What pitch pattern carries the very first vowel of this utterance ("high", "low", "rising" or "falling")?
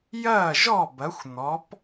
falling